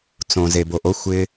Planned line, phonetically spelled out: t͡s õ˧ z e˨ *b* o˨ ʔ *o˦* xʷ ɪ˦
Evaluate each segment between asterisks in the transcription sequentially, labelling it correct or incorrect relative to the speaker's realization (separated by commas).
correct, correct